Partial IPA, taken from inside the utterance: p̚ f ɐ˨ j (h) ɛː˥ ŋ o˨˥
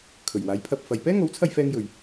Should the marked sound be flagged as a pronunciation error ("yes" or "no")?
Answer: yes